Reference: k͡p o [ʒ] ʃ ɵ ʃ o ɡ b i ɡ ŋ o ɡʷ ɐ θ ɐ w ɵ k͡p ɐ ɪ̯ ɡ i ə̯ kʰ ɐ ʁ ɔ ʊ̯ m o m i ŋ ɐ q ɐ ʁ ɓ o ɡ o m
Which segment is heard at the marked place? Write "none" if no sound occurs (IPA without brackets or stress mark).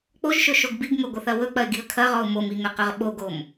ʒ